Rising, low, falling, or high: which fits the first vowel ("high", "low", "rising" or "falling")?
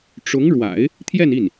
rising